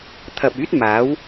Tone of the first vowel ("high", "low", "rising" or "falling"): low